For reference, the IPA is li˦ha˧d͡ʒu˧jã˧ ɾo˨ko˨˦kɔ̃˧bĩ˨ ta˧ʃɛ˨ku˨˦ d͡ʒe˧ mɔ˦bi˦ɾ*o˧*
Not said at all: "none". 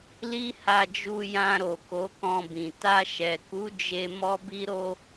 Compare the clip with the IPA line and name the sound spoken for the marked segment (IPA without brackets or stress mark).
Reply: o˦